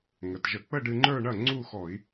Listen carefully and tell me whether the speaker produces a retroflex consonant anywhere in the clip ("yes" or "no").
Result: yes